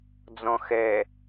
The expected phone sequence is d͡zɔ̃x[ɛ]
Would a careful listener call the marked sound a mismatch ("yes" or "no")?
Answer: no